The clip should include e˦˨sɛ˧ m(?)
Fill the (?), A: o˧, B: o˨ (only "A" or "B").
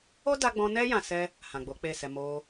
A